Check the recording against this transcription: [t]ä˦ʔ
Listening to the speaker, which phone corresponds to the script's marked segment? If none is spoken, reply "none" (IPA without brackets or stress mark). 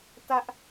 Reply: t